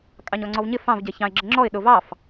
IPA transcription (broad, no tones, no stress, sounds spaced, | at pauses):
kʼ ɑ ɲ ɔ ŋ͡ǀ ɔ v ɲ ɪ f ɑ̃ v ɟ ɛ ç ɑ̃ ɪ̯ ɡ͡ǁ ə ŋ͡ǁ ɔ ɪ̯ ɗ ʊ v ɑ f